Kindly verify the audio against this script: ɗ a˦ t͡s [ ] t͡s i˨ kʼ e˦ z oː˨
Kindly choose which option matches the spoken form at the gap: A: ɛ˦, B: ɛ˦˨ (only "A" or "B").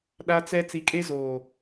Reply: A